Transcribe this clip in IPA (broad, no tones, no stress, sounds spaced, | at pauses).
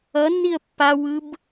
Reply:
ʌ nː i ə̯ pː a w ɯ b